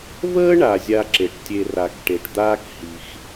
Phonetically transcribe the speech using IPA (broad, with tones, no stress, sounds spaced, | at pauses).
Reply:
v əː˥ ɳ a˨ zʲ a˦ ǁ e˩ ʈ tʲ e˨ r a˩ k ʈ e˩ ʈ d̪ aː˥ k h i˨ x